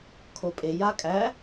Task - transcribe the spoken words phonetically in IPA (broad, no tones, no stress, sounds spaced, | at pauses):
kʰ o pʼ e j a kʼ æ